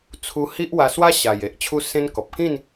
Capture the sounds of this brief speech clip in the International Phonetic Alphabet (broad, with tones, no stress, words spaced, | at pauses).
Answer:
t͡sʰu˧hi˦ʔwa˧ swa˦ɕa˨˩j e˦ʔt͡ɕʰu˦sẽ˦nkɔ˨p̚ kĩ˥˧n